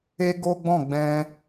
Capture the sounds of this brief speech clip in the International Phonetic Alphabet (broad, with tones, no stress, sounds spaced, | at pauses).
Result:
e˦ ɡ o˦ ɡ͡b ɔ̃˦˨ ɡ͡b ɛ̃˧